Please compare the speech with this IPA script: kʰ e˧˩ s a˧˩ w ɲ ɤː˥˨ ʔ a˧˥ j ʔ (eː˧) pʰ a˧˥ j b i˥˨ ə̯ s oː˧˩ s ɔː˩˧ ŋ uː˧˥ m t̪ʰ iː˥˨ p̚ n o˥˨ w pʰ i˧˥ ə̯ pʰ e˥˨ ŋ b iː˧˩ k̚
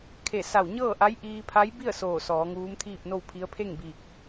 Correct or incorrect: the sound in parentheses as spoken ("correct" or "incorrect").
incorrect